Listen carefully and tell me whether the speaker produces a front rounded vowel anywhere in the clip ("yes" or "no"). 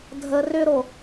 yes